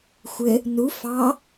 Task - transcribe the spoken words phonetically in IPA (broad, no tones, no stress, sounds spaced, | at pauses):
xʷ ɘ | n u f ɑ